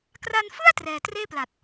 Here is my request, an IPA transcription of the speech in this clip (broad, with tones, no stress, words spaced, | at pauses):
kra˧nfɯ˥˩a̯ trɛː˧ treː˥˩pla˨˩t̚